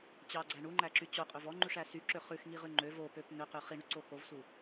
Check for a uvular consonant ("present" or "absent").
present